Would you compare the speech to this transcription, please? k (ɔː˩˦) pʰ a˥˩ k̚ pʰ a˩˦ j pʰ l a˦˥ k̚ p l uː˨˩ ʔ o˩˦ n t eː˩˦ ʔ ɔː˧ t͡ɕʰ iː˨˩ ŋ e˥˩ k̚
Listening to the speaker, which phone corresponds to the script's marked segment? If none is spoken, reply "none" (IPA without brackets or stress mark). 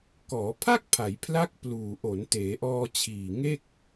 ɔː˩˦